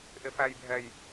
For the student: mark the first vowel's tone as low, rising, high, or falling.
low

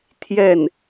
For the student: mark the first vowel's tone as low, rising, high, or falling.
falling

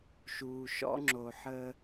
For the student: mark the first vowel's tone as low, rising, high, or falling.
low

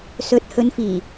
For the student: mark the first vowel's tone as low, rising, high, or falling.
rising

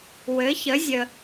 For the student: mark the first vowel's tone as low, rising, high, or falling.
rising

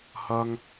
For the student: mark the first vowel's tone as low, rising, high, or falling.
high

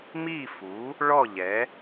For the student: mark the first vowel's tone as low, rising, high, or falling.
falling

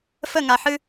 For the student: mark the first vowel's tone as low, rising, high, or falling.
falling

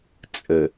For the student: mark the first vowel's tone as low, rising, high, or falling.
low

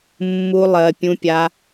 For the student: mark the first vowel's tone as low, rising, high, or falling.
high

